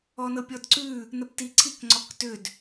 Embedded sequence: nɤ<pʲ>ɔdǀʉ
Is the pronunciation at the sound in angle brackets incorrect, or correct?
correct